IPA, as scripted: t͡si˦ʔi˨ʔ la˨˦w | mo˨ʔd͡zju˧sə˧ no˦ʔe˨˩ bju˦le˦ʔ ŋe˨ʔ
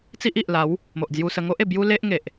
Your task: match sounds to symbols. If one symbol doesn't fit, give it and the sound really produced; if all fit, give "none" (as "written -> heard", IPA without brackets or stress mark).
n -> ŋ